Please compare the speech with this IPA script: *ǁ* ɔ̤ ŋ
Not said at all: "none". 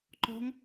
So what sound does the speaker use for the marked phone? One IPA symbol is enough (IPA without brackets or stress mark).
ǃ